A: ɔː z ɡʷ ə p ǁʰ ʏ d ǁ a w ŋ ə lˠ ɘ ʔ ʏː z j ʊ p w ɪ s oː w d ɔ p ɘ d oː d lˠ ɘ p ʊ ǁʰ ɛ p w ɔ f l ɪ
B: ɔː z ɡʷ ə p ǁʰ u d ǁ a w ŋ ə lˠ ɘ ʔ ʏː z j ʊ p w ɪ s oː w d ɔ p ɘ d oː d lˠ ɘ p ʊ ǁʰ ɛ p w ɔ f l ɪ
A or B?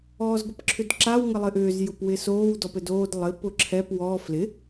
A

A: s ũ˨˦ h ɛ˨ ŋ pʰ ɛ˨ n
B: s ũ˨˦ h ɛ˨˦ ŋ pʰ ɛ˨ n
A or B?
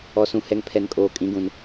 A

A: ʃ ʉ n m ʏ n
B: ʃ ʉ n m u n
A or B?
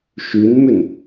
A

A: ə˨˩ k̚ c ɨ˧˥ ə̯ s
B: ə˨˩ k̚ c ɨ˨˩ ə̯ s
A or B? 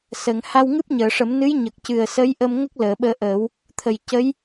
B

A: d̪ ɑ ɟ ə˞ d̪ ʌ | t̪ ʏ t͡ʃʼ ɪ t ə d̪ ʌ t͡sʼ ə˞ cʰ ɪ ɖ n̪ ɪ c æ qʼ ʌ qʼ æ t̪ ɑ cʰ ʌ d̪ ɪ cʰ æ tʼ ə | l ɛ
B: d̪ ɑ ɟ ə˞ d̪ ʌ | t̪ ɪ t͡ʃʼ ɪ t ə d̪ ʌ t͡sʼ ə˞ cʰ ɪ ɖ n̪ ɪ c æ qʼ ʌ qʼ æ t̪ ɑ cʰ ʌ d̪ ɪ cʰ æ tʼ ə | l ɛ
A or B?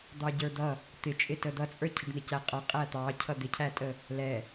B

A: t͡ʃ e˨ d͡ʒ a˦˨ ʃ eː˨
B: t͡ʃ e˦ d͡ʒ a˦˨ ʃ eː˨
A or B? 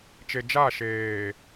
A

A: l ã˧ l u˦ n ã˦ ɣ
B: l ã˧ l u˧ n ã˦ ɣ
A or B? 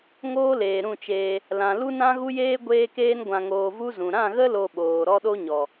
A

